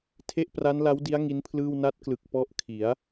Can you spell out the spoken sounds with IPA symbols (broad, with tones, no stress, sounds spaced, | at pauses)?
tʰ e˥˩ ʔ p r a˦˥ n l a˦˥ w d i˦˥ a̯ ŋ i˦˥ n pʰ l ɯː˥˩ w n a˦˥ t̚ k l ɯ˨˩ k̚ p ɔ˦˥ ʔ kʰ i˩˦ a̯